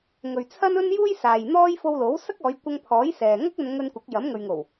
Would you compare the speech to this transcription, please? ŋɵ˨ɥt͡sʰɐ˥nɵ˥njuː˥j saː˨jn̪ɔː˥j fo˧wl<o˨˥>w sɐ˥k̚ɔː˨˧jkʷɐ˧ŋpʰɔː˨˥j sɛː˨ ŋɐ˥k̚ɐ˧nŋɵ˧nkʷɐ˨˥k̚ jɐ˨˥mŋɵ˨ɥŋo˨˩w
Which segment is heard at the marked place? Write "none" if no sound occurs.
o˨˥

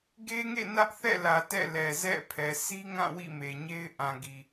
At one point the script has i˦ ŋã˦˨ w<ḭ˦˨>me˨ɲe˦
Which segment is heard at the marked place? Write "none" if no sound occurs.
ḭ˦˨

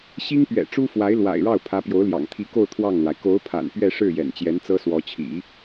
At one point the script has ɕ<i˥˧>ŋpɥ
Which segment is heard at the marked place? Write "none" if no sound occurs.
i˥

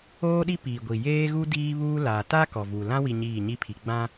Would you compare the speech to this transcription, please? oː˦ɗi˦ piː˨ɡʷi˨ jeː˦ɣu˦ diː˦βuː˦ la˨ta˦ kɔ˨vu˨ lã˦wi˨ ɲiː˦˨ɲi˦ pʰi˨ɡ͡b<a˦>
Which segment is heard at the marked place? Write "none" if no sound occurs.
ã˦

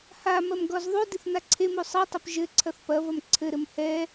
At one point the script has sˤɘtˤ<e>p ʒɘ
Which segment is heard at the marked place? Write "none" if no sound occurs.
ɘ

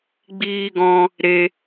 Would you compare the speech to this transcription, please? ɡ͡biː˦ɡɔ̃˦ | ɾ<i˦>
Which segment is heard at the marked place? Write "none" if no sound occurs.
e˦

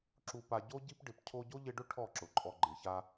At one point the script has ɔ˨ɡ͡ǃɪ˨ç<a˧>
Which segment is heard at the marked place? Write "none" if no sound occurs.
a˧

